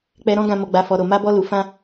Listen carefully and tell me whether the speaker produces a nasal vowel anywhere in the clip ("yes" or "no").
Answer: yes